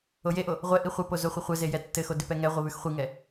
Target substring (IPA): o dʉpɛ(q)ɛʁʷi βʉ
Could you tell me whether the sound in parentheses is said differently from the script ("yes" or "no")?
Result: yes